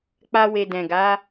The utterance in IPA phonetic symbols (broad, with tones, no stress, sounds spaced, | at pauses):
k͡p a˧ w e˨ d ɛ̃˨ ɡ a˨˦